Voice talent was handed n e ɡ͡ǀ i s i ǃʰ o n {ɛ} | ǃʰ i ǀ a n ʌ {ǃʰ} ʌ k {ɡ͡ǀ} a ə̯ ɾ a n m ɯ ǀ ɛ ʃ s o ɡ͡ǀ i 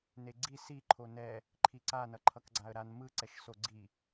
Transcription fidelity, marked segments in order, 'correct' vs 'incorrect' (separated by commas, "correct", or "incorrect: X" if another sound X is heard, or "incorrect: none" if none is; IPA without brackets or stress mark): correct, correct, correct